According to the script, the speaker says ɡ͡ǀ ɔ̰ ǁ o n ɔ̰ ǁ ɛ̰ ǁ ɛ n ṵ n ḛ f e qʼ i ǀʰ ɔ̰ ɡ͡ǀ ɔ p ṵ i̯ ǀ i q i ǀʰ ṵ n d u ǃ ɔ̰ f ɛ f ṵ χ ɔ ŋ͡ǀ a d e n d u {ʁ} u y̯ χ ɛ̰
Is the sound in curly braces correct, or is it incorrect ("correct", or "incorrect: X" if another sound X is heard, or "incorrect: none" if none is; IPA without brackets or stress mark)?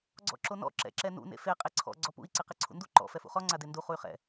incorrect: χ